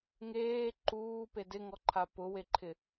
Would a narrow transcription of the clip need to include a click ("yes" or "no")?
yes